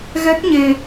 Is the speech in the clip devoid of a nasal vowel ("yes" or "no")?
yes